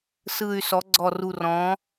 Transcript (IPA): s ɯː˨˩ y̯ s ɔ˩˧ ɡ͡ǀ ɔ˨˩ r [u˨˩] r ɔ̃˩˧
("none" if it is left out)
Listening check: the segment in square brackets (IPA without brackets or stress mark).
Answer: u˨˩